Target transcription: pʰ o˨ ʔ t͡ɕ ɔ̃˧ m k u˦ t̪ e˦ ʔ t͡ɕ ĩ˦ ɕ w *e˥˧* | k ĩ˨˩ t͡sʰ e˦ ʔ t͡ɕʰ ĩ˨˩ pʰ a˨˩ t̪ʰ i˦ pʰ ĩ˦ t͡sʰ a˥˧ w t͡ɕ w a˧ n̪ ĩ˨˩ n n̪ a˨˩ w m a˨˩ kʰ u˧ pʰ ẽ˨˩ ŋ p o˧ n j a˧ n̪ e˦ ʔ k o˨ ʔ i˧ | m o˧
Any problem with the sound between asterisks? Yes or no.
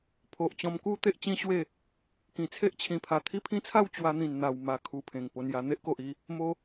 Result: no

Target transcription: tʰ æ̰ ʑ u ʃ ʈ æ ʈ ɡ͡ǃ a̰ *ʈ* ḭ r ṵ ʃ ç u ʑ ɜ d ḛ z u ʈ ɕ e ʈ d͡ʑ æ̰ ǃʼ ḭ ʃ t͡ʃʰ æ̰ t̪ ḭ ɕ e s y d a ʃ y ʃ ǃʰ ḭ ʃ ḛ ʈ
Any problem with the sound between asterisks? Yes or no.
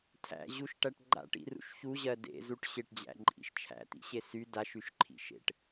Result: no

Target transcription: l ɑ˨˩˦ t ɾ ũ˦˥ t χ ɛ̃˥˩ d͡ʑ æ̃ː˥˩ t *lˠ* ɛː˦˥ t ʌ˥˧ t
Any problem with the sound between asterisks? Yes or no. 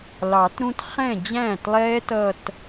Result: no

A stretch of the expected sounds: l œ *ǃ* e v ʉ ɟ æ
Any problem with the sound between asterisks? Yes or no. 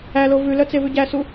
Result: yes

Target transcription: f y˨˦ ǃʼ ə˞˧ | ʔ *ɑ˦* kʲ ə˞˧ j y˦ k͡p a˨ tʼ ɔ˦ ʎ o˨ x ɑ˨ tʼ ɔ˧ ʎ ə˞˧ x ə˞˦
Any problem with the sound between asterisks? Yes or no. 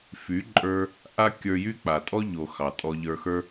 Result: yes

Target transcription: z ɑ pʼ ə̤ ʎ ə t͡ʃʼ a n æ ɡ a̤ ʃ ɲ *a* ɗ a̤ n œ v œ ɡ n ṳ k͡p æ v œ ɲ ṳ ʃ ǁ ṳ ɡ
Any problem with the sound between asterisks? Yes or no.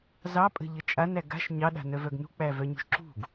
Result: yes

